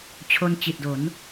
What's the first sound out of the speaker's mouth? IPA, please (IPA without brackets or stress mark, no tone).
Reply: t͡ɕʰ